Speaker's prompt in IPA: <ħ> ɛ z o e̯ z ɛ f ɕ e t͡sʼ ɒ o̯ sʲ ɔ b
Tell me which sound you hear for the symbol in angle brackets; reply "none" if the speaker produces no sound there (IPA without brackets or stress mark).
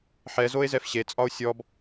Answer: ħ